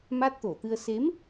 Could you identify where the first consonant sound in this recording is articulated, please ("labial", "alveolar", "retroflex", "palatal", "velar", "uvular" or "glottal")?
labial